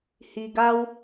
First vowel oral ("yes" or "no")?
yes